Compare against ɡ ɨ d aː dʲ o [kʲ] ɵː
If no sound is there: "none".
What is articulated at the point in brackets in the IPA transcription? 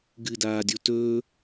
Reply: t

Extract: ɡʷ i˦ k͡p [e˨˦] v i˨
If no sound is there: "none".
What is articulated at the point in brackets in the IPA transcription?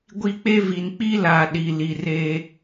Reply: e˦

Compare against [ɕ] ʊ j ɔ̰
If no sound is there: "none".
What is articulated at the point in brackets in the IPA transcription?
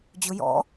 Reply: d͡ʑ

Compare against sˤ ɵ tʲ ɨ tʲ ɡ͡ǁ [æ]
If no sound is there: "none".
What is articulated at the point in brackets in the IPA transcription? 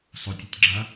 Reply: a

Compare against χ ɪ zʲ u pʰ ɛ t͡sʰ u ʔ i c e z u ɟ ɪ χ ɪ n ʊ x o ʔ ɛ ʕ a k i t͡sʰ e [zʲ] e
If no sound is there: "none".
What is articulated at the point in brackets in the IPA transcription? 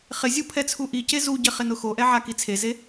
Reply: z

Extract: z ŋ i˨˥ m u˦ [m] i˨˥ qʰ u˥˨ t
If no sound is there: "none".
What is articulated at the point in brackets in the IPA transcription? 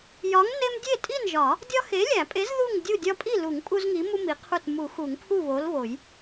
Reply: m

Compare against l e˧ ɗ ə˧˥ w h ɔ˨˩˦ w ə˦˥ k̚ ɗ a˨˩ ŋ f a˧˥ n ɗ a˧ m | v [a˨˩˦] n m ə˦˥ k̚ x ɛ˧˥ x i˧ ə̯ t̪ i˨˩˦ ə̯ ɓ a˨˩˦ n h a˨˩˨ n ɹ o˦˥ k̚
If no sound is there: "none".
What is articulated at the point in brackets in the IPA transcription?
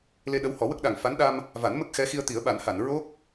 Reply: a˨˩˦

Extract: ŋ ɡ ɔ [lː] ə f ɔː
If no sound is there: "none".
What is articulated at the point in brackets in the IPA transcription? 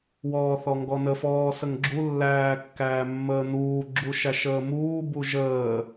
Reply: n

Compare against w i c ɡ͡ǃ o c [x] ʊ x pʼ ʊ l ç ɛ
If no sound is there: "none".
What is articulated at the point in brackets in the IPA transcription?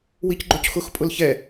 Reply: x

